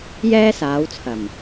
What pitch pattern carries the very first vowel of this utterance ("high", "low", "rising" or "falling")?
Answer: high